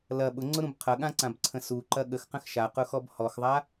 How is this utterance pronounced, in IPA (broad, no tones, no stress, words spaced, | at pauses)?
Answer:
lɐ ɓʊŋ͡ǀʊɾũb qʰɐɠãǀãbǀʰə̃ suǃɐ ɠəxqə̃x ʃaqʊxɔb hɔxðˤa